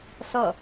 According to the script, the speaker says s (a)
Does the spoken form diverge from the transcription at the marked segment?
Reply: yes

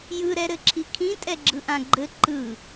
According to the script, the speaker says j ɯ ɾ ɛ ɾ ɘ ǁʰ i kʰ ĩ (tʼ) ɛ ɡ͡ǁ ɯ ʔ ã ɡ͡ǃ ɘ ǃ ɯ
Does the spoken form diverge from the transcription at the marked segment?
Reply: no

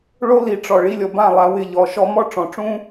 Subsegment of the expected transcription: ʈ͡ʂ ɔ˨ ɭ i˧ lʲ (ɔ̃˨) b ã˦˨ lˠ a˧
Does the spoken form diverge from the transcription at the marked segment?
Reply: yes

